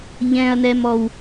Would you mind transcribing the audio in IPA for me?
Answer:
ʎ ɛ̃ ɐ̯ n ɛ m ɔ w

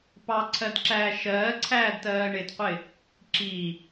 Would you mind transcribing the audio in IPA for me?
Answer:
p ɑ ǀʰ ɜ d ǁ æː ʃ ɜː ǀʰ æː d t ɜː ɳ ɪ d qʷ ɪ | ǁ i

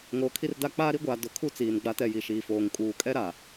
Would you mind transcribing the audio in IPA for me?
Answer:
ŋ oː˨ kʰ i˦ r d a˦ k͡p aː˦ ɾ i˦ ɡʷ aː˨ d ʊ˨ kʰ u˦ t͡s iː˨ n ɡ͡b a˦ t ɛ˦˨ j i˨ ʃ iː˨ f oː˨ ŋ kʼ uː˨ kʼ ɛ˦ ɾ a˨

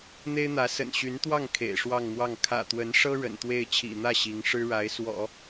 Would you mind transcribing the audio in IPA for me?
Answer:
n̪ e˥ ɪ̯ n̪ ä˧˥ s ə̰˨˩ n ɕ y˧˥ n t̪ w ɑ˥˩ ŋ kʰ ḛ˨˩ ɪ̯ ʂ w ɑ˥˧ ŋ n̪ w ɑ˥˩ ŋ kʰ ä̰˨˩ t̪ w ə˧˥ n ʂ ɤ˥ ɻ ə̰˨˩ n t̪ w e˥˩ ɪ̯ t͡ɕʰ ḭ˨˩ n̪ ä˥˩ ɕ i˧˥ ŋ ʂ ɻ̩˥ ɻ a˧˥ ɪ̯ s w ɔ̰˨˩˦

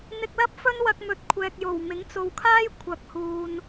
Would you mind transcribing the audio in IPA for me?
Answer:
n̪ ɪ˧ k̚ l ɐ˥ p̚ f ɵ˥ n w ɐ˧ k̚ m ɵ˧ t̚ kʷʰ ɛː˨ k̚ j o˨˩ w m ɪ˨˥ ŋ t͡s o˨ w kʰ aː˥ j kʷʰ ɐ˨ k̚ h uː˨ n

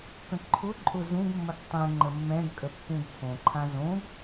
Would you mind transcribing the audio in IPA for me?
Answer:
k ə̃ ǃʰ ʊ ǃʼ ʊ z ũ ɡ mː ə ɡ tˤ ɛ̃ ŋ͡ǃ ə mː ɛ̃ ɡ kʼ ə pː ũ ɡ kʰ õ ǃʰ ã z õ ɡ

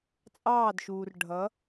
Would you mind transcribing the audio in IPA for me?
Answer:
t͡sʼ ɑː˦˨ d ʃ uː˨ r ɖʱ ʌ˨˦

